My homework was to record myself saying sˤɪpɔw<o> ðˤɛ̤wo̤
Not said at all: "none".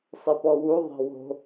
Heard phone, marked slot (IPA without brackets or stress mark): u